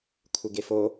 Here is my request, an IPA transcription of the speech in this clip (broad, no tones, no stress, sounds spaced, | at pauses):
kʷʰ ɪ ɡ e f o